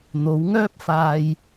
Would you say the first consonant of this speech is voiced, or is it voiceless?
voiced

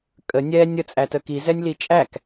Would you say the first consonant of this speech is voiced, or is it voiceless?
voiceless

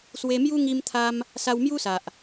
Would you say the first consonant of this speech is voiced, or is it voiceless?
voiceless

